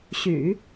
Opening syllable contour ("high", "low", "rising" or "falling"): low